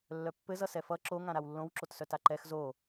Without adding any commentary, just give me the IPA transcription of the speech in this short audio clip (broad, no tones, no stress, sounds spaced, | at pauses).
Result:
lː œ pː ɘ z ʌ s ɛ f ʌ ǁ o ŋ ã ɾ a w lː õ w ǁ o t s œ t a ǃ ɛ x z o